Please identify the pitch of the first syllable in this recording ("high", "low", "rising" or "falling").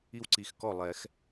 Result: high